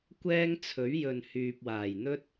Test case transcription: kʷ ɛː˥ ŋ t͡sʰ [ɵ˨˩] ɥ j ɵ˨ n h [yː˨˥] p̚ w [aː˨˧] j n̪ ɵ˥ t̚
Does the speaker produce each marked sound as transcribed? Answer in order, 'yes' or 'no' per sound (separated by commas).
no, no, no